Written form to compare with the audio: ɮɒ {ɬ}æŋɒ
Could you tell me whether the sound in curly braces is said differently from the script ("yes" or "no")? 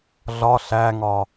no